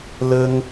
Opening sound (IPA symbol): l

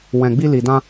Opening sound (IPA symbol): w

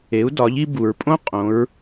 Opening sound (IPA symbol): e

